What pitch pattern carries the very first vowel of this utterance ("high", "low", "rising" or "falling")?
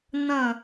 falling